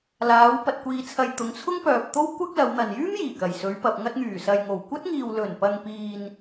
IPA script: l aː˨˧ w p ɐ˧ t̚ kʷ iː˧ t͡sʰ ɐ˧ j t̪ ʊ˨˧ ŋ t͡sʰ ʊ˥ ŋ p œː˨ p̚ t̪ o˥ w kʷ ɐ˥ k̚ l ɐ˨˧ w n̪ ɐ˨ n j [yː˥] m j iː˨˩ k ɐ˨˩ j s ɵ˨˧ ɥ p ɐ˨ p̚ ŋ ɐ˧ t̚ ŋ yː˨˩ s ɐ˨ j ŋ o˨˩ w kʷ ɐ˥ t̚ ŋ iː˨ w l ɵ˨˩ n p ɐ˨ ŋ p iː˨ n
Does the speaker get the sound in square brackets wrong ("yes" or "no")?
no